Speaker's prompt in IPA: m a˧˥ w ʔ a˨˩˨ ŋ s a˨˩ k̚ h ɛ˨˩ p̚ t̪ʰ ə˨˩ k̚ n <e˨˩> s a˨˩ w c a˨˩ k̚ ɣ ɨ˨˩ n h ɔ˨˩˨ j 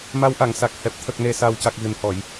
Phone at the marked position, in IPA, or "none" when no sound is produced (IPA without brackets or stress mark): e˨˩